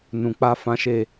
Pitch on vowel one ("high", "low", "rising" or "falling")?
low